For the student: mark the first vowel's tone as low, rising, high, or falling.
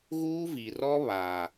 high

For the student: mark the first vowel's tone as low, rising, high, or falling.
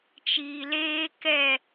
low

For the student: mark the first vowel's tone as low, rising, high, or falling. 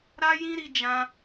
high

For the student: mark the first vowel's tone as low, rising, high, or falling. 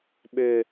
low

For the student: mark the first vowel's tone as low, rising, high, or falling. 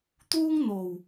high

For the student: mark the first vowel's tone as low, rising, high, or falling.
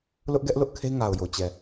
high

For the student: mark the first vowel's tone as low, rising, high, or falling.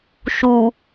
low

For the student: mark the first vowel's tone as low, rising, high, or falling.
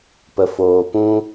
low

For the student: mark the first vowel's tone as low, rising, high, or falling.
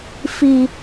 high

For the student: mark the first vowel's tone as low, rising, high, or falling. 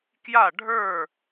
falling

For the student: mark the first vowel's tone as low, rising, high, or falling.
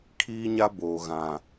high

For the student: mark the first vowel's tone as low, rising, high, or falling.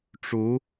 rising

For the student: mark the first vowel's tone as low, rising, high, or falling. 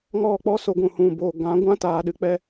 falling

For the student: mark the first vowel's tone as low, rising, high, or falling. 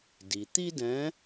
low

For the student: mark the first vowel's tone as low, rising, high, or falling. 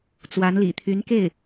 rising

